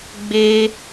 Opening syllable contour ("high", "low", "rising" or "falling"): high